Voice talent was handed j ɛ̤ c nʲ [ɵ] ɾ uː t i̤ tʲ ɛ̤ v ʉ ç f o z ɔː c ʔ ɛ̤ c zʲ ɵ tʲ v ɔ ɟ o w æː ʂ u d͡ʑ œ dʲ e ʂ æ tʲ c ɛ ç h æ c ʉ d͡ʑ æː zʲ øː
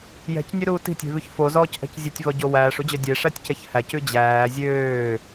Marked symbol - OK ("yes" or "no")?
no